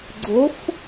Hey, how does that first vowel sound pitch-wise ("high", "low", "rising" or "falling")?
rising